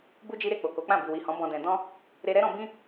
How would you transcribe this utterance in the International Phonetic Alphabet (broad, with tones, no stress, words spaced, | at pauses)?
bu˦d͡ʒi˦ɾe˦˨ k͡po˨ ko˨˦k͡pã˦˨ bi˨wi˨hɔ̃˨˦ bɔ̃˧dɛ̃˧ dɔ̃˦ | ɾe˧ɾɛ˦ɾɔ̃˧bĩ˦